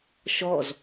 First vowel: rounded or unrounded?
rounded